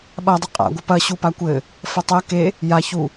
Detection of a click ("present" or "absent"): absent